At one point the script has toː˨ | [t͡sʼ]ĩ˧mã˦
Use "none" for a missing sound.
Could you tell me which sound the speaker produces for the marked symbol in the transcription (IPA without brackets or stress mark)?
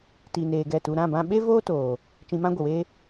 t͡ʃ